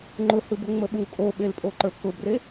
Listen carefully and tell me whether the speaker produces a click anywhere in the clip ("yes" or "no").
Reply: yes